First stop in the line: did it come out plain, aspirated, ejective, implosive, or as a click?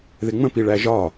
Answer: plain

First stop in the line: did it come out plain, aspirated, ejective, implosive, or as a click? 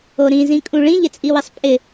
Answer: ejective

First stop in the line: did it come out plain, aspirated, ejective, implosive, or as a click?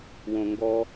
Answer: plain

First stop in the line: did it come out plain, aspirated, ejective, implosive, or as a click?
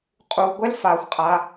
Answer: ejective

